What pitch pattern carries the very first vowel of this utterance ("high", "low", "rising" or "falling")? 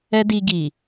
high